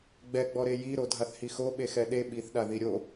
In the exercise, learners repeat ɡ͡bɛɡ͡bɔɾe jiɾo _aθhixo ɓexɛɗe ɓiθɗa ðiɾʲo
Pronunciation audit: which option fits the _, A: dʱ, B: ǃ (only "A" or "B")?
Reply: A